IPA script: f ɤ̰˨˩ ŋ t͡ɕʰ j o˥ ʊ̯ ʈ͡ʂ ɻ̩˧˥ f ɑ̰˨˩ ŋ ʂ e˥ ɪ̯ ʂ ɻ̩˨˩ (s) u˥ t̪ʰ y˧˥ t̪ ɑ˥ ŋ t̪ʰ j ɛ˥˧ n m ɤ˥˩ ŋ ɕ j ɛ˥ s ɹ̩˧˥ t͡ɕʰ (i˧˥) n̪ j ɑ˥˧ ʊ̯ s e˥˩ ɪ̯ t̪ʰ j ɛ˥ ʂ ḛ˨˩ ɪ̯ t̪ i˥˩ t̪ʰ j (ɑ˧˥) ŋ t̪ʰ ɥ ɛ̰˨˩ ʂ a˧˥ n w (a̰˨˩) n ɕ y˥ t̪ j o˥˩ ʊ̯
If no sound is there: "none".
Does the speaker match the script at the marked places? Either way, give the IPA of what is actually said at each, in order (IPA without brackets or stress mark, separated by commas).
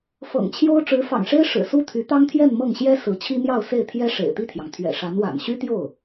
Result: s, i˥, ɑ˩, a̰˨˩